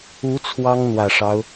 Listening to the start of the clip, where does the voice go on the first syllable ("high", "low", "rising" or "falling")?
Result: rising